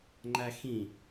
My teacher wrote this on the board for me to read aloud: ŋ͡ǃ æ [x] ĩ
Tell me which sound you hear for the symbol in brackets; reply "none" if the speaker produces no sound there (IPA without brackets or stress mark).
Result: x